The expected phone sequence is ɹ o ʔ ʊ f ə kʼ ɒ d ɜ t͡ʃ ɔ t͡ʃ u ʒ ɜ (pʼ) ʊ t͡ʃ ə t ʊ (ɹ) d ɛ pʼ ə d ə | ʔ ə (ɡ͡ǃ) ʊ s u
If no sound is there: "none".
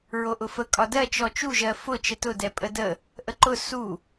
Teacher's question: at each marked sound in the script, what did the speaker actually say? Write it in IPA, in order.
f, none, ǃ

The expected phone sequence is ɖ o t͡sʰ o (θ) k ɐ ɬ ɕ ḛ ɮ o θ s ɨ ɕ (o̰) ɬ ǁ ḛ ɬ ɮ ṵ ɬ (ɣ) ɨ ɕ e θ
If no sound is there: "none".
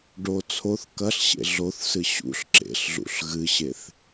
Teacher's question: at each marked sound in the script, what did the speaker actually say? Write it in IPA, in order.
θ, ṵ, ɣ

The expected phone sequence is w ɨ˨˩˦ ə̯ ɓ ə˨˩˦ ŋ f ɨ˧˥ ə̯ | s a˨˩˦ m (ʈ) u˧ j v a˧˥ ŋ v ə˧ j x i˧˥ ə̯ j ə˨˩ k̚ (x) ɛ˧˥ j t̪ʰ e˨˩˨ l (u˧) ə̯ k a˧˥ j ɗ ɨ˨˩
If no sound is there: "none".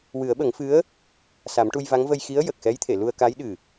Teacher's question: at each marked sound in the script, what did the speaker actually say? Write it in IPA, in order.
ʈ, x, u˧

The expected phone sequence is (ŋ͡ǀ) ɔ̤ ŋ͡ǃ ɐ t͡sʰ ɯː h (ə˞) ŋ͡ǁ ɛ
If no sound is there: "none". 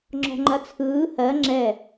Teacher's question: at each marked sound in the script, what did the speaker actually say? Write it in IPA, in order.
ŋ͡ǁ, ɜ

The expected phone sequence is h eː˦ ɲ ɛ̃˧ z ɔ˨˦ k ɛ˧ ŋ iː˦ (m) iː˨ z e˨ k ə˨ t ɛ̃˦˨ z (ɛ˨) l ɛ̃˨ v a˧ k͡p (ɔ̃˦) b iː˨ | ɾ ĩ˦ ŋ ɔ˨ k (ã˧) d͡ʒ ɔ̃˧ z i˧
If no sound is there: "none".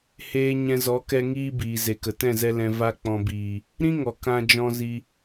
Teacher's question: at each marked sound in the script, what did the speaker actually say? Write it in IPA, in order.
b, ɛ˧, ɔ̃˨, ã˧

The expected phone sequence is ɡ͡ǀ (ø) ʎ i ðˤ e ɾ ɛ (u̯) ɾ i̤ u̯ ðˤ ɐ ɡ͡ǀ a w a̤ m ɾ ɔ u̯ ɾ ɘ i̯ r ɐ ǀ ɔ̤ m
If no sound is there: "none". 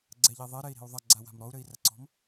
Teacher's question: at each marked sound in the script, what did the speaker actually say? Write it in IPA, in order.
ɛ, i̯

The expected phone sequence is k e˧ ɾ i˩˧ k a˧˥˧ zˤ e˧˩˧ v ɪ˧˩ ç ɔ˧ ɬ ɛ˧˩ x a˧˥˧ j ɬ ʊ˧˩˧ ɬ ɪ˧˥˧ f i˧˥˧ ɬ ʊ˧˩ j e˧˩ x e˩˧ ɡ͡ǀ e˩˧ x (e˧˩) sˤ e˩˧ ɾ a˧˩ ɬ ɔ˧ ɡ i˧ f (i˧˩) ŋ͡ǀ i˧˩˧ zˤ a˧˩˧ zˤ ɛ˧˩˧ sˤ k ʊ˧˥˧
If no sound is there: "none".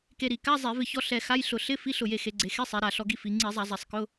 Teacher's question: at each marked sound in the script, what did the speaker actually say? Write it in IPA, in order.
e˧˥˧, i˩˧

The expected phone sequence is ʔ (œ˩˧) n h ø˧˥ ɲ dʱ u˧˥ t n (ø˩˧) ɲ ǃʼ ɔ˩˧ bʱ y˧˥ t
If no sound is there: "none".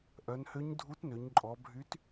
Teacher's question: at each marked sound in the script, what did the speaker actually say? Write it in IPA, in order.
œ˩˧, ø˩˧

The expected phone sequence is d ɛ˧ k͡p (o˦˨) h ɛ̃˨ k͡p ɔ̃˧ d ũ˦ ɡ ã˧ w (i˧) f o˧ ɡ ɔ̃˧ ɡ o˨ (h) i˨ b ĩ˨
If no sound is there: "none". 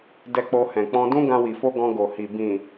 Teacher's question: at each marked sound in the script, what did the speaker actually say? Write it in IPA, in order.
o˧, i˨, h

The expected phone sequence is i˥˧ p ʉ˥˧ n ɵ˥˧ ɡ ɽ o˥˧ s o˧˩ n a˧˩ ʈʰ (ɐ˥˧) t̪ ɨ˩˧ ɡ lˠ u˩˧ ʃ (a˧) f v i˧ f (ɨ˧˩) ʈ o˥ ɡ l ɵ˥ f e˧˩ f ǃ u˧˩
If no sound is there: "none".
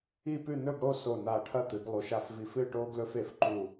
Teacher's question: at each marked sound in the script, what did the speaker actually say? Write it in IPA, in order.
ɐ˥˧, a˧, ɨ˥˧

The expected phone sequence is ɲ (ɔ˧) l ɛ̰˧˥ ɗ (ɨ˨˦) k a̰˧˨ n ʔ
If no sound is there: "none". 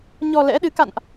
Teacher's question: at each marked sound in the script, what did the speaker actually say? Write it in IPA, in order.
ɔ˧, ɨ˨˦

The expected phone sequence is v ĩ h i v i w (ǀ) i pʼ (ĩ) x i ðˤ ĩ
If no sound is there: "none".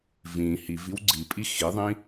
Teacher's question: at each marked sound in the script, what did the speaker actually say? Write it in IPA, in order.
ɡ͡ǀ, i

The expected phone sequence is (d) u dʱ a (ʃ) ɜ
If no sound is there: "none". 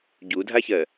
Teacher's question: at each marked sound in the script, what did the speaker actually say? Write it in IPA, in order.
ɟ, ç

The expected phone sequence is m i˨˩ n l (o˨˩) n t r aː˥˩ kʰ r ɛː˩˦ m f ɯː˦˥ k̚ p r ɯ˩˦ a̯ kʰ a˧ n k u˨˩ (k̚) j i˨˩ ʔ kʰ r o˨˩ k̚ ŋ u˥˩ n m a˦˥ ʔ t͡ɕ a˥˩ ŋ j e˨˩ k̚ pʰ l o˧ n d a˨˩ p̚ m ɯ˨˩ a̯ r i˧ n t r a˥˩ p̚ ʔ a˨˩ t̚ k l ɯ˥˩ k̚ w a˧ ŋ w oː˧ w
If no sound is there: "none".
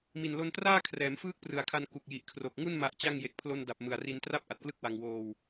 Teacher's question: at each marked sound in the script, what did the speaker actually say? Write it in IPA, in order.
o˧, k̚

